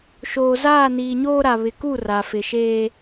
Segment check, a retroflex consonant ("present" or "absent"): absent